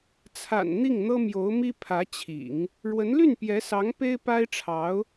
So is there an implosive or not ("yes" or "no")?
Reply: no